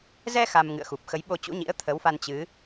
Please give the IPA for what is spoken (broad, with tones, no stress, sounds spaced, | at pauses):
z ɛ˧ x a˧ m ŋ ɨ̰˧˨ ə̯ x u˨˩ p̚ x ə˨˦ j ɓ o˧ t͡ɕ ṵ˧˥ ɲ ḭ˧˥ ə̯ t̪ʰ ə˨˦ w f a˧ n t͡ɕ ɨ˨˦